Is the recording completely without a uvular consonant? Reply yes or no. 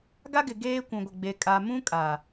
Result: yes